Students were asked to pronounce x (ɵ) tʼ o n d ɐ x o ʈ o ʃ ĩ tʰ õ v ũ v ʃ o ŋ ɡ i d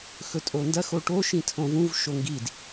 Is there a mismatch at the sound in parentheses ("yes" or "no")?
no